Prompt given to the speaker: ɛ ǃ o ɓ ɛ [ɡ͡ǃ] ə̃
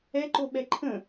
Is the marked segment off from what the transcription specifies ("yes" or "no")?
yes